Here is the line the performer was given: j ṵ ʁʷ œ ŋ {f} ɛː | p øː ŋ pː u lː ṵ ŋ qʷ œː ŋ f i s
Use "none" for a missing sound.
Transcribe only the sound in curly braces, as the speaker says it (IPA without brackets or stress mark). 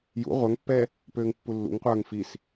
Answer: pː